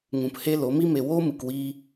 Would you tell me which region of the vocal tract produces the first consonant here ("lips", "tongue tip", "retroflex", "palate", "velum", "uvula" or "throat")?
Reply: velum